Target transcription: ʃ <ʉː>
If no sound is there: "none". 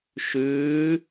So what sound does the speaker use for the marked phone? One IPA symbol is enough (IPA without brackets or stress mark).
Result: ʉː